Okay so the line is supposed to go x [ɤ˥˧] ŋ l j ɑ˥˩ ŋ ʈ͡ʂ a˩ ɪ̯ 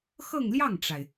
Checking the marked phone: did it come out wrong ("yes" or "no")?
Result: no